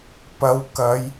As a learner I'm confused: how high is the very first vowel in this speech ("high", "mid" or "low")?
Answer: low